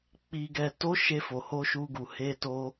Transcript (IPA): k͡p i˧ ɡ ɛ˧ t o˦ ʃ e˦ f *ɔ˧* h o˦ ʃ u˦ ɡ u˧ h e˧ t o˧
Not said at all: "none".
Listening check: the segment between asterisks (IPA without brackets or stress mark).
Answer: o˧